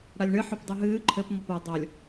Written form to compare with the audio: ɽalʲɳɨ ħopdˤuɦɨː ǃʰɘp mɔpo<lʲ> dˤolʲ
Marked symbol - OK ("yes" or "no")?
no